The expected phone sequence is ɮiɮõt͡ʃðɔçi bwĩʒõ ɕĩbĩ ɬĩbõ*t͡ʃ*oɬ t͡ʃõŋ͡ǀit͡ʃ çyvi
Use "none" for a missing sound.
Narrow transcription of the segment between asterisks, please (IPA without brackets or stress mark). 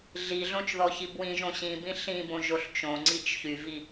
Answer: ʒ